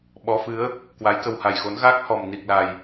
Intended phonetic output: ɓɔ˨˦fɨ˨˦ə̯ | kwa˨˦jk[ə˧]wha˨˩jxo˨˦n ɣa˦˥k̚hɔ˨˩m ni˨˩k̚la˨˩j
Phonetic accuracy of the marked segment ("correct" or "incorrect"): correct